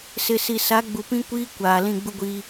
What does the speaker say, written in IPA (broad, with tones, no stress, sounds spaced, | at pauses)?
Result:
s ɪ˨ s i˨ s a˨˦ ɡ͡b u˨ p ĩ˦ kʷ iː˦ kʷ aː˨ l ĩ˦˨ ɡ͡b u˦ ɡʷ iː˦